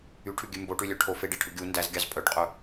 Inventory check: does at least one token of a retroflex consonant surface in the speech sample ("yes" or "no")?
yes